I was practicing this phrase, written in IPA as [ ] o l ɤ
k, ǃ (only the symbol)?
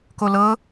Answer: k